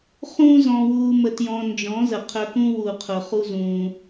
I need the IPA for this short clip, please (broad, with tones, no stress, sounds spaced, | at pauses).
χ ũː˦ z ɔ̃˧ w uː˧ m ə˧ t j ɔ̃˧ n d͡ʒ ɔ̃˨˦ z ə˨ qʰ œ˧ k ũ˦ w u˨ qʰ ʊ˨ χ u˦ z ũː˧